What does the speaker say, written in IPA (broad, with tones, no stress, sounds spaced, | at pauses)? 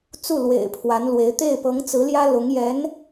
t͡s u˥˩ l w ḛ˨˩ ɪ̯ pʰ w a˧˥ n l w e˧˥ ɪ̯ t̪ e˥˩ ɪ̯ p ɤ˧˥ ŋ t͡s ɹ̩˧˥ l j ä˥ l ʊ˧˥ ŋ j ɛ˧˥ n